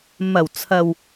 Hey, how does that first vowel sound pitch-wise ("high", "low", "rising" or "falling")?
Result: low